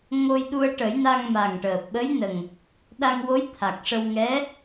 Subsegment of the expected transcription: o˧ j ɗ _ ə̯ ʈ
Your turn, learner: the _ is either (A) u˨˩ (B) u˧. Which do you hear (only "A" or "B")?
B